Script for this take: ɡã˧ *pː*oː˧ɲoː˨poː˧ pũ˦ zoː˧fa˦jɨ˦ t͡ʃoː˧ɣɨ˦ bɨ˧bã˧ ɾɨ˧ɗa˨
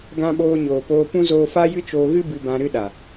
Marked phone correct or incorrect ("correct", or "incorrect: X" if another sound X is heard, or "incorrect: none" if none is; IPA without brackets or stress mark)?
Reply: incorrect: ɓ